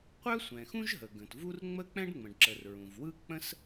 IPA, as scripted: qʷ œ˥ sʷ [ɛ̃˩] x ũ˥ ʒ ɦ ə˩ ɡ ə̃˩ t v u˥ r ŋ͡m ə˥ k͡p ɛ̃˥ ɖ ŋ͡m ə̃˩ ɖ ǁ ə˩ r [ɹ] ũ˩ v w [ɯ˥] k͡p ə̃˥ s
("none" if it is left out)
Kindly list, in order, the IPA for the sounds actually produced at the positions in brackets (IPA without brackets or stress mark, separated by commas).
ɛ̃˩, ɹ, ɯ˥